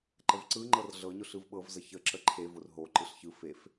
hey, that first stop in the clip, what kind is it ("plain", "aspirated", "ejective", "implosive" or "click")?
click